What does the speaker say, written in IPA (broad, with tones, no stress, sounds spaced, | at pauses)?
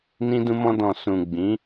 n ĩ˧ d ũ˧ m ɔ̃˧ d ɔ̃˨ s ũ˨ ɡ͡b ĩ˨˦